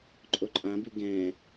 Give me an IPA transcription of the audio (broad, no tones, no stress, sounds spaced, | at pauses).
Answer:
ǃʼ o ǃʼ ã b ʉ ɡ ɛ̃